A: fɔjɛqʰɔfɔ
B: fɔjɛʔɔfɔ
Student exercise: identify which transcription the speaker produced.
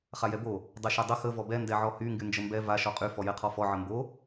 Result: A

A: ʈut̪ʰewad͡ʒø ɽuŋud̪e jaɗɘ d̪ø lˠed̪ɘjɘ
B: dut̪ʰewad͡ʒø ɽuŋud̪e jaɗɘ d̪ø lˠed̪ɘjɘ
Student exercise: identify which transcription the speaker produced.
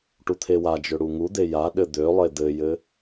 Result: A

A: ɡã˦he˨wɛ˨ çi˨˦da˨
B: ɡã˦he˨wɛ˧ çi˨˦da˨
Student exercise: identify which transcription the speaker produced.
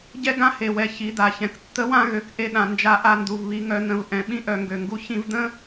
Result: A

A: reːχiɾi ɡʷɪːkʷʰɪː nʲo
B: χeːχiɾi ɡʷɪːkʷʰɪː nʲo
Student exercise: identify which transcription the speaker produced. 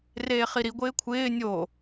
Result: A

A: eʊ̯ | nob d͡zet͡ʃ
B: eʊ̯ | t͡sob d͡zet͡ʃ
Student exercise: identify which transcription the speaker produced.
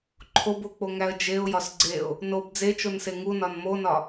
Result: A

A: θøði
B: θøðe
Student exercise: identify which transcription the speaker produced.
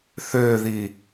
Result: A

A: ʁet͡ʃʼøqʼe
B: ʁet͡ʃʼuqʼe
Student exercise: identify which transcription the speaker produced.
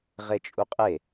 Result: B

